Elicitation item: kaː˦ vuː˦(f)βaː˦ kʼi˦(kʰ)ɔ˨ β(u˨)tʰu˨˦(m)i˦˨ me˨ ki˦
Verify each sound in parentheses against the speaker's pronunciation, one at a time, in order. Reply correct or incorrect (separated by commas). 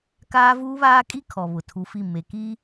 incorrect, correct, incorrect, incorrect